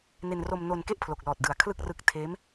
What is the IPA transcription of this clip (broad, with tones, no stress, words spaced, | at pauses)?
ne˧nro˧m no˧n ke˥˩ʔpʰlo˨˩k̚lɔː˨˩t̚dɯ˩˦a̯ kʰlɯ˥˩k̚rɯ˦˥k̚ tʰeː˦˥m